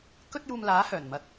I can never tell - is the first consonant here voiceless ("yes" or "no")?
yes